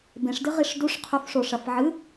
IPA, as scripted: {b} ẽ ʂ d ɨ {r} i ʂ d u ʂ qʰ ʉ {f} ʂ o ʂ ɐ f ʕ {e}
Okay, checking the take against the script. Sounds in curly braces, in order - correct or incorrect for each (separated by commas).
correct, incorrect, correct, incorrect